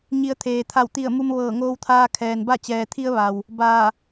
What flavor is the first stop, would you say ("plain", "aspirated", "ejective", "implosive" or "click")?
aspirated